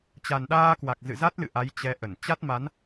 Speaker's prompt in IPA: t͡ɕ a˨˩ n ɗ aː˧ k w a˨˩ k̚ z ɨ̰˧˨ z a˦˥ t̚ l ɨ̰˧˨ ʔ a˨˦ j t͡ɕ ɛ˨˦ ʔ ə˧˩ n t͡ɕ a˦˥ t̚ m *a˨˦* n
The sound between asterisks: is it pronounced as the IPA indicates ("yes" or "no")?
yes